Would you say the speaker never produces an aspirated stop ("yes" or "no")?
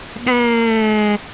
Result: yes